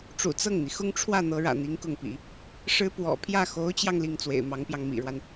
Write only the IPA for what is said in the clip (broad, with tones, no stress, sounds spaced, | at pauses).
ʈ͡ʂ ṵ˨˩ t͡s ɤ˥˩ ŋ n̪ i˩ x ʊ˥ ŋ ʈ͡ʂʰ w ä˥˩ n̪ ɤ˧˥ ɻ ä̰˨˩ n̪ i˧˥ ŋ k ʊ˥˩ ŋ p ḭ˨˩˦ | ʂ ɻ̩˥ p w ɔ̰˨˩ pʰ j ä˥˩ x o˧˥ ʊ̯ t͡ɕ j ɑ˧ ŋ l i˥˩ ŋ t͡s w ḛ˨˩ ɪ̯ m ɑ˧˥ ŋ p j ɑ˧ ŋ m ḭ˨˩ ɻ w a˦ n